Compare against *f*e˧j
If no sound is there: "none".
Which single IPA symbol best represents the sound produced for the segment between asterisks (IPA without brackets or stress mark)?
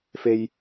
f